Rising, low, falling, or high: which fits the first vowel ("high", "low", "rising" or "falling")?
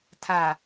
low